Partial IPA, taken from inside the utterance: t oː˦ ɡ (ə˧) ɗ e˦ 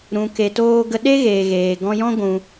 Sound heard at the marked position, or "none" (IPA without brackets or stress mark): ə˧